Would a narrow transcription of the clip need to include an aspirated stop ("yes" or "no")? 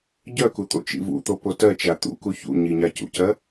no